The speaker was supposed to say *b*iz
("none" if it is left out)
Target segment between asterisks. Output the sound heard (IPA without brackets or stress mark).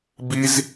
b